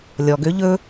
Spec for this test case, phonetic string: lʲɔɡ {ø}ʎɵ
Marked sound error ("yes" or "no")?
no